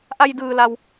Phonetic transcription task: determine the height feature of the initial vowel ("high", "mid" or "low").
low